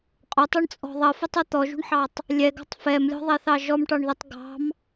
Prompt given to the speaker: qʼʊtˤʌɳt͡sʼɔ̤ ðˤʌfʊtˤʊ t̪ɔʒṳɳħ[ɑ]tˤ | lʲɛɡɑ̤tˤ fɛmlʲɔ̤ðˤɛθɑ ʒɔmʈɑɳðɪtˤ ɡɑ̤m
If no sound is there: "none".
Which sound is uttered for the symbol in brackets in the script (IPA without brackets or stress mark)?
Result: ɑ